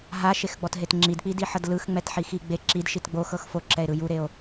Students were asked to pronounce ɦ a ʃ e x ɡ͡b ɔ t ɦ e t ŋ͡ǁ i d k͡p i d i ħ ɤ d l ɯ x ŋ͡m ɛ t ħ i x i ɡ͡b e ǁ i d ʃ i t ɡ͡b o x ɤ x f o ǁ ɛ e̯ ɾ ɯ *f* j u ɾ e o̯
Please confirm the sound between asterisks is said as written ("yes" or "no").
no